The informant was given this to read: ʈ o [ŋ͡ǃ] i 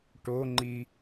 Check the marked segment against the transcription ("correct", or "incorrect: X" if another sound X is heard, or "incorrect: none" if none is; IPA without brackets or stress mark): correct